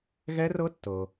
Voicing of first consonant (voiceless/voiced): voiced